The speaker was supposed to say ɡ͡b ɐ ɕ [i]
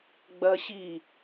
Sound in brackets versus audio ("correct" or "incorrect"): correct